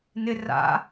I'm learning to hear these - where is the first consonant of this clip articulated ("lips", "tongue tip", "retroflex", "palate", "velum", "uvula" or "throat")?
tongue tip